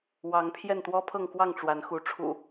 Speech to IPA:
w ɑ˨˦ ŋ pʰ j ɛ˥˨ n t̪ w ɔ˦ pʰ ɤ˥˨ ŋ k w ɑ˥˨ ŋ ʈ͡ʂ w a˨˦ n x u˨˦ ʈ͡ʂʰ ṵ˨˩

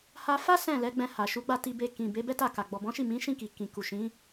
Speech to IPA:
h a˧ f a˦ s ɛ̃˦˨ l ɛ˨˦ ɡ͡b ɛ̃˧ h a˨ ʃ u˨˦ ɡ͡b a˦˨ t i˧ b e˧ k ĩ˨ b e˨˦ b ɛ˦ t a˦˨ k a˨ ɡ͡b ɔ˨ b ɔ̃˨˦ ʃ i˦˨ m ĩ˨˦ ʃ ĩ˦˨ k i˨ k ĩ˨ k u˨ ʃ ĩ˨˦

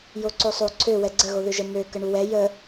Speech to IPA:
j o ǀ o sˤ o ǀʰ ø w ɛ ɡ͡ǀ ə ɣ o ð ø ʒ ə m ø k ə ɳ u w ɛ j ə

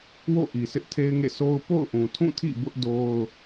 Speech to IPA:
w o̰˦˨ ʔ i˨ s ɪ˦ ʔ tʰ e˦ ɪ̯ ŋ ḛ˦˨ s o˦ ʊ̯ p o̰˦˨ ʊ̯ ʔ ũ˨ tʰ ũ˦˨ tʰ ḭ˦˨ b ʊ˦ ʔ d o˦ ʊ̯

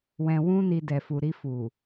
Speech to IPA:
w ɛ̃˨ w ũ˧ n i˨ d ɛ˨ f u˨ ɾ i˧ f u˨

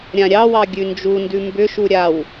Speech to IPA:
ɾʲ ã ɾʲ ɑ w ɑ ɡʲ ʉ n d͡ʒ u n d ʉ m b ʏ ʃ u ɾʲ a w

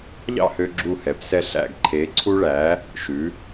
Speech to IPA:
ʎ ɑ̰˥˧ h ø˧ ɡ͡ǁ u˧˩ h ɛ˩˧ p s ɛ˧ ɬ æ̰˧˩ ɡ ǃʰ e˩˧ ǀʰ u˧ ɭ æ˩˧ | ʃ ʉ˩˧

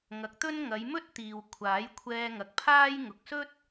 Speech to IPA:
ŋ ɐ˨˥ k̚ t̪ ɵ˥ n ŋ ɐ˨˧ j m ɵ˥ t̚ t̪ iː˨ w kʷʰ aː˨˥ j kʷʰ ɛː˧ ŋ ɐ˨ k̚ pʰ aː˥ j ŋ ʊ˨ k̚ s ɵ˥ t̚

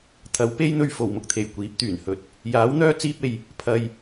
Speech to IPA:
t̪ʰ ɐ˨˧ w p e˥ j n̪ ɵ˧ ɥ f o˨˩ w m ʊ˧ k̚ t̪ʰ e˨˩ j kʷ iː˨˥ p̚ t̪ yː˨˩ n h ɵ˧ t̚ | j aː˨˥ w n̪ œː˥ t͡s iː˧ p̚ e˨ j | pʰ ɐ˧ j

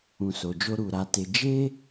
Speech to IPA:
ũ˨ s o˨ d͡ʒ o˧ ɾ u˨ ɾ a˨˦ t e˧ d͡ʒ e˦

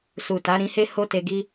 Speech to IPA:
s u˨ t a˨˦ ɾ ĩ˧ h e˦ h o˦ t e˧ ɡ i˦

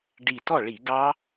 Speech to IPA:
ɖ i˧˩ t ɔ˥˩ ɭ i˧˩˧ ɡ ɑ˦˥

